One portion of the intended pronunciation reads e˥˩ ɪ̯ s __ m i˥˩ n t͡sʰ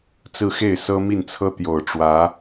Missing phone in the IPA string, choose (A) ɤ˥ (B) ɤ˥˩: A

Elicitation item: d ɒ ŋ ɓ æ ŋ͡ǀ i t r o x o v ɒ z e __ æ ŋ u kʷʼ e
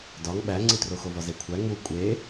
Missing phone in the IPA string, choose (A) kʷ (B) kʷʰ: B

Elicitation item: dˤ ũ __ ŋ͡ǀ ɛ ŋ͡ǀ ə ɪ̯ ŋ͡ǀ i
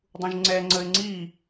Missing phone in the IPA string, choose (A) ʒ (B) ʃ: A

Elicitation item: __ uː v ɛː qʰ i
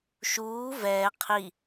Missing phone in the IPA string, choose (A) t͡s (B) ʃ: B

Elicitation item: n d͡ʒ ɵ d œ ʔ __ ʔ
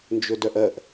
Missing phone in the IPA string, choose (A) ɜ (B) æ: A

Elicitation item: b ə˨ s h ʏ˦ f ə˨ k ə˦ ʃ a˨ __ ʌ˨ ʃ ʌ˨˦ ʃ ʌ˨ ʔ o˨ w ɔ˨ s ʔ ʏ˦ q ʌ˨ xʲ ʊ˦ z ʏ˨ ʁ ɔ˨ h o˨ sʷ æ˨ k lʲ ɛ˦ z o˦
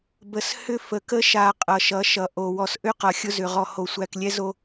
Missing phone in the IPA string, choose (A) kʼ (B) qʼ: B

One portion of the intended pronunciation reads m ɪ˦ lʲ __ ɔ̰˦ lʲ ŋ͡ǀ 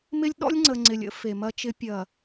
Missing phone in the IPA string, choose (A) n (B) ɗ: B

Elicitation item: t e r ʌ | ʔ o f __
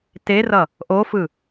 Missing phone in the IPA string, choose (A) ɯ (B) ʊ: A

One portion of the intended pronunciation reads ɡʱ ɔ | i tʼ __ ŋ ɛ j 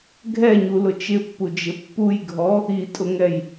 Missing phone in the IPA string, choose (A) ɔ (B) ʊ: B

